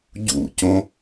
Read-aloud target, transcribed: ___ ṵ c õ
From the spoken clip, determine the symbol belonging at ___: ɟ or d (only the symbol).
ɟ